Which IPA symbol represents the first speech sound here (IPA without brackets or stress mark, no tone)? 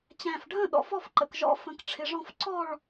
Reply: t͡ɕ